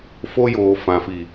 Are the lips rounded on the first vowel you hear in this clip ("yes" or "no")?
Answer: yes